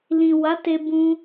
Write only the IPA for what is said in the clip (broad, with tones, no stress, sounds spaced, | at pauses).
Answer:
l ĩ˨ w a˨˦ t e˧ b ũ˧